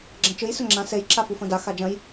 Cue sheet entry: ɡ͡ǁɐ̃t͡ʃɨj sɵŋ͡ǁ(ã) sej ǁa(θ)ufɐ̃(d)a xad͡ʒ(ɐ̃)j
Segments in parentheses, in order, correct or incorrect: correct, incorrect: f, correct, correct

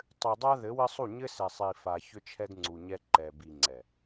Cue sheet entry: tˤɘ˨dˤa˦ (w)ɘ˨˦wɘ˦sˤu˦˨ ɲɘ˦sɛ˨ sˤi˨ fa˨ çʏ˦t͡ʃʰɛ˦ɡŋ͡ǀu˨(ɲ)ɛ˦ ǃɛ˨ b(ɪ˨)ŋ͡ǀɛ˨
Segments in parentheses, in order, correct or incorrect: incorrect: ð, correct, incorrect: i˨

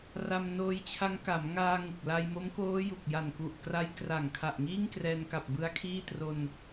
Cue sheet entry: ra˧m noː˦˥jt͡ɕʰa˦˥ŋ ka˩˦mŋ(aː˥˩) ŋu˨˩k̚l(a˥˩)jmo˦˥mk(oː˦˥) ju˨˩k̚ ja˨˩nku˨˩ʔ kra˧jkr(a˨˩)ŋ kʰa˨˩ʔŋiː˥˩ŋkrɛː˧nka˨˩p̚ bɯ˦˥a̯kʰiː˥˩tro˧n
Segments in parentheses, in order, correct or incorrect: incorrect: aː˧, incorrect: a˧, correct, correct

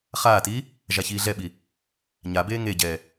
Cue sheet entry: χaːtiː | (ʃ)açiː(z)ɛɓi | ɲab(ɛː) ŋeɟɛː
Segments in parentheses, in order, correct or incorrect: incorrect: ʒ, incorrect: ɮ, incorrect: eː

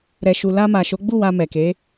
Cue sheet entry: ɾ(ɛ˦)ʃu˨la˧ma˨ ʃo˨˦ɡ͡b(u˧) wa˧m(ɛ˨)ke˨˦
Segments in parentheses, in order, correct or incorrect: incorrect: ɛ˨, incorrect: u˦˨, correct

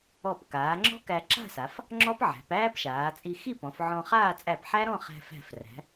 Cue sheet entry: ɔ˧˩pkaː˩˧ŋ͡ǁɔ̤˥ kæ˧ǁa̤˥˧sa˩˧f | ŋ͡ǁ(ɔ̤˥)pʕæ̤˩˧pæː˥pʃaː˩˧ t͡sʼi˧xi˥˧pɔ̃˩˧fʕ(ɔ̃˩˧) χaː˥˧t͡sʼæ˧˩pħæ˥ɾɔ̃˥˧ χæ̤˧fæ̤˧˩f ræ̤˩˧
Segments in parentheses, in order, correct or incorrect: incorrect: ɔ˥, incorrect: ɔ̃˧

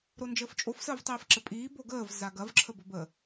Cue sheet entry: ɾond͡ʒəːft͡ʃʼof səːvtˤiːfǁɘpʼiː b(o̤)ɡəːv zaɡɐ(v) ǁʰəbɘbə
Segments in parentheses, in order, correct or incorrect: incorrect: o, correct

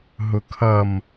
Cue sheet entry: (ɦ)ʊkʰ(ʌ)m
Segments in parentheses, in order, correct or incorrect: correct, correct

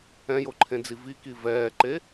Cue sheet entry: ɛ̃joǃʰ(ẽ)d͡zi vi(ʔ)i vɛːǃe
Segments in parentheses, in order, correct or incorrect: correct, incorrect: k

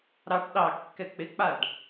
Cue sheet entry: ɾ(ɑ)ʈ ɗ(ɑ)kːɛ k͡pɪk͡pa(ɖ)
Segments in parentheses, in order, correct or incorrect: correct, correct, correct

